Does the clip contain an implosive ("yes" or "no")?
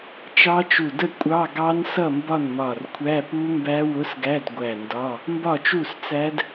no